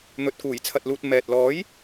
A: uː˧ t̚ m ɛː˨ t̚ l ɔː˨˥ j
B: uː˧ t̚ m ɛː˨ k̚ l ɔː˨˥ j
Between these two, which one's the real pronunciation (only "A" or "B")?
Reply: A